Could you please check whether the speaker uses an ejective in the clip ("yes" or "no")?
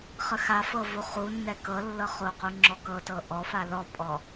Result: yes